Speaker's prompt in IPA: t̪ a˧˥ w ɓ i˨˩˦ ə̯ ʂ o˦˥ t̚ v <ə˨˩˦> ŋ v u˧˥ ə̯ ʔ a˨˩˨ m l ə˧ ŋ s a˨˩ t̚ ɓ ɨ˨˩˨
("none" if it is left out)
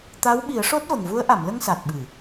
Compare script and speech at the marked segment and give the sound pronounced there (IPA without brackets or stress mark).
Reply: ə˨˩